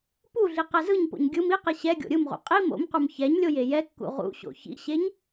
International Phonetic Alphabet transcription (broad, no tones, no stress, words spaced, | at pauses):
puɮi qɛzɯɲpo̰ɲ ɡʲɯm iqɛ ɕɛ ɡʲo̰ɾʲɯmʁṵ qʼi mo̰mqum çɛɲlʲoj ejɛkːṵ ʁṵɕo̰ çḭɕeɲ